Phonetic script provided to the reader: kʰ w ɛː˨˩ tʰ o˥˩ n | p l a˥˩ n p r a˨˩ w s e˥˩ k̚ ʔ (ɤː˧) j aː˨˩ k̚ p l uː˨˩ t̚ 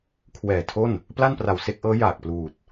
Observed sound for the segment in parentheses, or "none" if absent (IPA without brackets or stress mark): ɤː˦˥